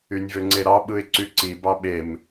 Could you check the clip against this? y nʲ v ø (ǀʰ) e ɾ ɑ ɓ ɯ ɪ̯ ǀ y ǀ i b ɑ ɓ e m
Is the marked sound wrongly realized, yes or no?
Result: yes